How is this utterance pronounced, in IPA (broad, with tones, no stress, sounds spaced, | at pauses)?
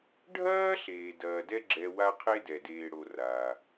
ɖʱ ɐː˥ ɬ eː˩ d ɐː˩ d ɛ˦ ɡ͡ǁ ɛ˨ w a˦ qʰ e˥ d ɛ˩ d eː˨ ɽ o˨ r aː˩